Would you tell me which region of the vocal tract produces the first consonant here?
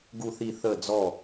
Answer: velum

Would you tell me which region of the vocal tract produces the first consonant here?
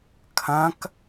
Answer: velum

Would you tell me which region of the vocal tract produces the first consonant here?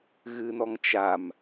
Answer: velum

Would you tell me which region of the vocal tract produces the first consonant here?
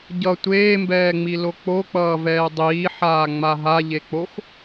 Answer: palate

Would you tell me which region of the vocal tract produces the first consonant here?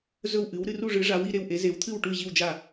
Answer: tongue tip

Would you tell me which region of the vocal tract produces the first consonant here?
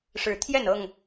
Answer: retroflex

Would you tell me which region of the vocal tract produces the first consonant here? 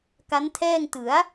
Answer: velum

